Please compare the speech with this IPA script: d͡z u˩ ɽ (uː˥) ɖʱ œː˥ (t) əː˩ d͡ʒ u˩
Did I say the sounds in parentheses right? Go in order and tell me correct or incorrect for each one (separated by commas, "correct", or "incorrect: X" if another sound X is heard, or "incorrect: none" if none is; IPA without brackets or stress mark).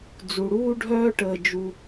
correct, incorrect: ʈ